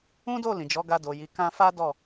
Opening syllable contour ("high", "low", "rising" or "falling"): high